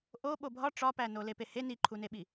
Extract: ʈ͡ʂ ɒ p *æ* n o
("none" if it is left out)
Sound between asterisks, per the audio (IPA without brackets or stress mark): æ